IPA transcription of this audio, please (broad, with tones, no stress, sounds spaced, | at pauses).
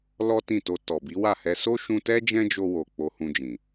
l ɔ˦ t ĩ˦˨ t o˧ t ɔ˨ b i˨˦ w a˦˨ h ɛ˧ s o˦ ʃ ũ˧ t ɛ˦ d͡ʒ ɛ̃˦ d͡ʒ o˧ w o˨ k͡p o˧ h ũ˧ d͡ʒ ĩ˨